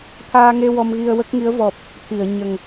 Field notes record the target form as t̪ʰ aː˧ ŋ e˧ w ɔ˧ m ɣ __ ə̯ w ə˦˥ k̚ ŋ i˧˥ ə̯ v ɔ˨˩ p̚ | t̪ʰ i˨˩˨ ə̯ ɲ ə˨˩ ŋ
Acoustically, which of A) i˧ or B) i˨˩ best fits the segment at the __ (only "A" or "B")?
A